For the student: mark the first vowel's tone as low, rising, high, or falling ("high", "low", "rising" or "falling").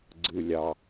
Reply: low